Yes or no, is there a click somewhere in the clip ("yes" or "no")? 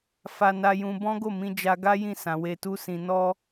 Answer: no